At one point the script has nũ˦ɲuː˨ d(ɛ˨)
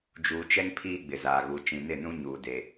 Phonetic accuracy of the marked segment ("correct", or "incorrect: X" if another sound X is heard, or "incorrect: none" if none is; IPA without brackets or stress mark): incorrect: e˨